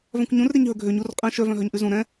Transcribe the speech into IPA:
v œ̃ kʷ ɲ ũ r ɾ e ɲ ɦ ɵ ɡʱ ø ɲ u r qʼ ɛ̃ ʃ œ v œ̃ ɦ œ ɲ ʔ ʉ z ũ ɾ ɛ̃

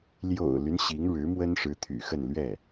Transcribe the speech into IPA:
l j o̰˨˩ ʊ̯ l y˦ n ɕ i˧˥ ŋ ɻ ɻ̩˧˥ m w ə˥ n ʂ ɻ̩˧˥ t̪ʰ y̰˨˩ x ə˥˧ n l ɥ ɛ˥˩

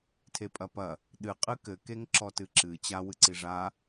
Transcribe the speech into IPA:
tʰ e pʼ ɐ p ɐ | ɗ ɨ qʼ ɨ k ɘ k e ŋ ǁ ɔ t ɨ ǁ ɨ t͡ɕ a w ɨ ǀ i ʐ a

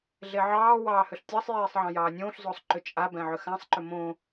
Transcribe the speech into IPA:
ɮ e ʕ ɑː w ɑː h ø ɬ tʲ ɑ sˤ j eː sˤ ʕ ɑ̃ j ɑː nʲ õː ɬ z oː sˤ ǃ ʏ t͡ʃʼ a b ɛ̃ ʕ ʏ x ã sˤ ǃ ʏ m õ

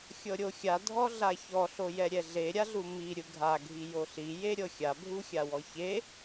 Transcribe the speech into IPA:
xʲ ɤ ɾʲ o xʲ a dʱ ɔ ɮ a ç ɔ ɬ o j ɛ ɾʲ ɛ ɮ e ɾʲ a ɮ u m i ɾʲ ɯ ɡʱ a ɡʱ i j o ɬ i j e ɾʲ ɤ xʲ a bʱ u xʲ a w ɔ ç e

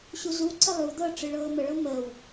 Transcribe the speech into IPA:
ɕ u z u ǀ ə lˠ u d̪ ɤ ʈ͡ʂ ɨ ɭ ɤː m ə ɭ ɤ m əː w

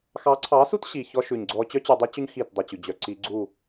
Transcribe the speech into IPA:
x ɑ˨˦ ǀʰ ɑ˨˦ s u˦ t ɕ i˨ ç ɔ˦ ʃ ʉ˨ ɲ ɡ͡ǀ ɔ˦ t͡ɕ œ˦ t͡ɕ y˨ dˤ u˦ t͡ɕ ɵ˦ ɲ x i˦˨ t dˤ u˨ t͡ɕ ʉ˨ d͡ʑ œ˨ ǀ i˦ ɡ͡ǀ u˦˨

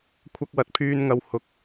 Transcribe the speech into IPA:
kʷʰ ɐ˧ k̚ w ɐ˨˥ t̚ pʰ yː˨ n ŋ ɐ˨ w h ʊ˨ k̚

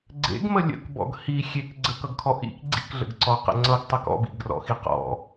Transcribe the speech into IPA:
ɡ͡ǀ ḛ ɡ m ə lʲ ə̰ k b ɔ̰ ɡ h i xʲ e k ɡ͡ǀ ə k ʌ ɡ kʰ ɔ ʔ ḭ k ɡ͡ǀ ḭ k ɮ ə̰ ɡ ǀ ɔ q ə̰ ŋ͡ǀ ʌ ɡ tˤ ʌ k ɔ̰ b ḭ ɡ r ɔ̰ x i q ɔ̰

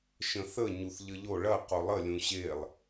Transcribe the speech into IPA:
ʃ ə̃ θ ə ɲ u θ ʎ ə ʎ o ɭ ɐ q o lˠ ə lʲ ũ ɕ e lˠ

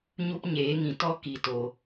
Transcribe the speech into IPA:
ɲ u˦ p ɲ eː˨˦ ŋ ĩ˨ t ɔ˦ k i˨ t o˨

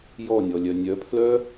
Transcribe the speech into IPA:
j ɔ nʲ ɔ lʲ œ nʲ œ pʰ l œ

